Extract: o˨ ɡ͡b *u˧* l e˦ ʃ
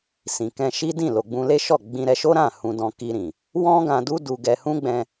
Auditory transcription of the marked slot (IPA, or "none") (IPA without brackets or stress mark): ũ˧